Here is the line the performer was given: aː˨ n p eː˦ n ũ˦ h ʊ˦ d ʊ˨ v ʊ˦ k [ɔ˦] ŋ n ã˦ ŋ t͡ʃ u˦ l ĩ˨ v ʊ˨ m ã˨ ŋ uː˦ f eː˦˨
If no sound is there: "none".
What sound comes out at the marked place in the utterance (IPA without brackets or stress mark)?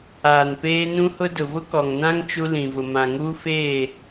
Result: ɔ˨